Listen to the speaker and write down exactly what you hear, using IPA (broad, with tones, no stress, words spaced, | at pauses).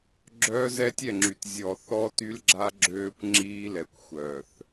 ɡ͡ǁœː˦zɛ˦tʲɛ˦˨ŋ͡ǁy˨t zʲɔ˨θɔ˦ty˦lɡ͡ǁa˦ ɡ͡ǁøː˦kʷ ŋ͡ǁiː˦lɛ˨kʷxʷœ˨θ